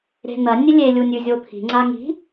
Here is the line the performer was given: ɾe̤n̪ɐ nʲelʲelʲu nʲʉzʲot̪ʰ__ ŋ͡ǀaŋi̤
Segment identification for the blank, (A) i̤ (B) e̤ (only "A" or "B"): A